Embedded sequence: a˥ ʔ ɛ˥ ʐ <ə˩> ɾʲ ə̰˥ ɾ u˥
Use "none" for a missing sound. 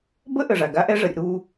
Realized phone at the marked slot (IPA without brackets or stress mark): ə˩